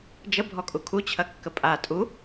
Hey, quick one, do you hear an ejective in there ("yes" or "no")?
yes